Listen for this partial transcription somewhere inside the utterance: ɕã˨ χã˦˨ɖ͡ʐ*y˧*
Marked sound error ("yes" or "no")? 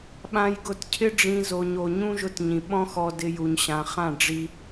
yes